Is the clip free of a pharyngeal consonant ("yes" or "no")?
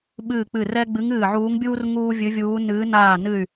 no